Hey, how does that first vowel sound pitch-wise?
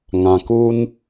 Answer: low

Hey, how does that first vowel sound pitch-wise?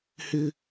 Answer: high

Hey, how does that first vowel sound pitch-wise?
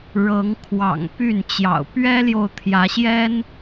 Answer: rising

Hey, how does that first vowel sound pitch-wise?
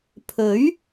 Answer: rising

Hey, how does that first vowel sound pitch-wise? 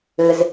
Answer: low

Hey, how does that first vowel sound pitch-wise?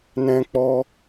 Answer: high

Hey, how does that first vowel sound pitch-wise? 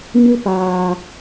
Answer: high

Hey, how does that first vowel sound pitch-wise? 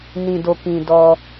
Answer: low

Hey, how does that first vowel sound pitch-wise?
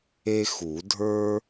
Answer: high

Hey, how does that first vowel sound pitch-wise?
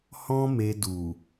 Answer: high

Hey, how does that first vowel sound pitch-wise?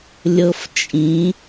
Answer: high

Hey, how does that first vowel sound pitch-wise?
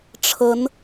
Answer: rising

